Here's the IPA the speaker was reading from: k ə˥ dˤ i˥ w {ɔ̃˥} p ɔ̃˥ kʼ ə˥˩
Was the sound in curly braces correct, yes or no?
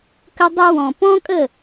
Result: no